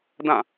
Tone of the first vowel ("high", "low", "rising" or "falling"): falling